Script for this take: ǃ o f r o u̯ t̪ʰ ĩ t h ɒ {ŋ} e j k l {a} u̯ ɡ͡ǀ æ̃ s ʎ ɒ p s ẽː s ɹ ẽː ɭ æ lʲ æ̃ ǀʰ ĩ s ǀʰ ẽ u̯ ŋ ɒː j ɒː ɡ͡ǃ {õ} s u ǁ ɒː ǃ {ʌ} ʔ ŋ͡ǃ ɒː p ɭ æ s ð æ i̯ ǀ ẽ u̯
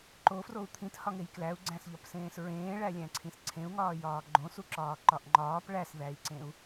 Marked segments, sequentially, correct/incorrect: correct, incorrect, correct, incorrect

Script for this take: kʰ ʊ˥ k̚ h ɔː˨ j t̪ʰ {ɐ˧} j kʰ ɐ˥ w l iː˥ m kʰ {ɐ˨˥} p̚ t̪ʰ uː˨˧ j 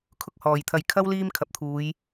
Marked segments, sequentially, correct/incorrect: correct, correct

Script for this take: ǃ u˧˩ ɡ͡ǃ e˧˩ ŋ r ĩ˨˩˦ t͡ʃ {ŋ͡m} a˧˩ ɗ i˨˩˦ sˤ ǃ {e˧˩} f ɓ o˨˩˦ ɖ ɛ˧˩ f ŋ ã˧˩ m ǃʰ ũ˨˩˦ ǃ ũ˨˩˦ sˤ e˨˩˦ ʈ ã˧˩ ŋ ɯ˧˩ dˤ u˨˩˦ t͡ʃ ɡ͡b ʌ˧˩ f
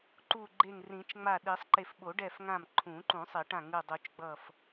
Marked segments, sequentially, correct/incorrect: correct, correct

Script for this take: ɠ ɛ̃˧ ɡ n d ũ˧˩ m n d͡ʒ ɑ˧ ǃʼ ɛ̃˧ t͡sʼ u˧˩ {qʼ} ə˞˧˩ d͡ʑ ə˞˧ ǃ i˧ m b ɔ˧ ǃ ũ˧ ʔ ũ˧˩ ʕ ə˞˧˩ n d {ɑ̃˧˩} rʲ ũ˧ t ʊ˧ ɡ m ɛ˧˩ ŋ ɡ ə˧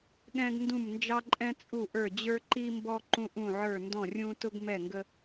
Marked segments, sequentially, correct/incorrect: incorrect, incorrect

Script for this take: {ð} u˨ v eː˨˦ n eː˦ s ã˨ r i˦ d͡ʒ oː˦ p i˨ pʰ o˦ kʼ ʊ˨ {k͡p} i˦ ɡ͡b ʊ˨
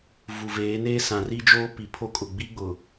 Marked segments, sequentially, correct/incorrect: incorrect, incorrect

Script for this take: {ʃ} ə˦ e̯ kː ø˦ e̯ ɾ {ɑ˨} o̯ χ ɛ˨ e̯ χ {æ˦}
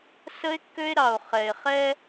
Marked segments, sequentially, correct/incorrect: incorrect, correct, incorrect

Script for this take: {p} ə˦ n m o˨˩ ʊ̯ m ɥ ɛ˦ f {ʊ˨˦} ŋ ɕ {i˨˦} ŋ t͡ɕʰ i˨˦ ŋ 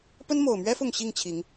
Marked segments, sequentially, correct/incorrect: correct, incorrect, incorrect

